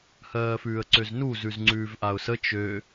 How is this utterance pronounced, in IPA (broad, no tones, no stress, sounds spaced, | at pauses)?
h ɜː f ʉː ə̯ ǀ ø z n u z ʉ z ŋ͡ǀ ʉː v ʔ a ʊ̯ s ə t͡ʃ ø